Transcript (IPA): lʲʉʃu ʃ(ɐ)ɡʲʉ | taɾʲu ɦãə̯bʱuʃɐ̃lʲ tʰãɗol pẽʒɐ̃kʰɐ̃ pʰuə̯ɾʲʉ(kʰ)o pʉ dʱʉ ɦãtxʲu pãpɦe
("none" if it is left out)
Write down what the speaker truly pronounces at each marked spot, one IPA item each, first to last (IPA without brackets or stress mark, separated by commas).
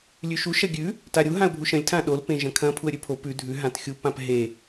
ɐ, pʰ